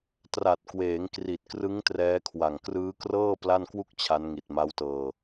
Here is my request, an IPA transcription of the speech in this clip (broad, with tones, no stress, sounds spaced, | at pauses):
t r a˨˩ t̚ k w eː˩˦ ŋ k r i˨˩ t̚ k r ɯ˦˥ ŋ t r ɛː˦˥ kʰ w a˨˩ ŋ k r ɯː˦˥ k r ɤː˥˩ p l a˥˩ n k w u˥˩ k̚ t͡ɕʰ a˦˥ n ŋ i˨˩ t̚ m a˦˥ w t ɤː˧